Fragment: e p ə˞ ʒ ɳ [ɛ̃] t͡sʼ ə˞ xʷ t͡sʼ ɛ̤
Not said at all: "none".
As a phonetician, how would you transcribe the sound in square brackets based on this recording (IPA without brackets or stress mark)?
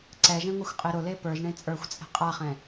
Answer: ẽ